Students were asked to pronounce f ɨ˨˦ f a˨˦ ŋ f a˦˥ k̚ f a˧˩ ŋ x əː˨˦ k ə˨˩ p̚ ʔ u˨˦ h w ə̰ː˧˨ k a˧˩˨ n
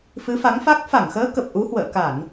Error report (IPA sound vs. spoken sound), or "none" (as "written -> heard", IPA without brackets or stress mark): none